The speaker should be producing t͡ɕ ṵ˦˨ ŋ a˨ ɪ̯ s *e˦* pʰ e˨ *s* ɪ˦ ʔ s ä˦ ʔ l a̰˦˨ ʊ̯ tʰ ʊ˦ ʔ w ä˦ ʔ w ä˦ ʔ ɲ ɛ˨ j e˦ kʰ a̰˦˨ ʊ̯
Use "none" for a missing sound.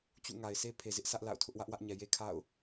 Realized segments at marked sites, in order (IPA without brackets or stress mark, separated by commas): e˦, z